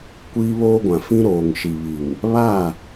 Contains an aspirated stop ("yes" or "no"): no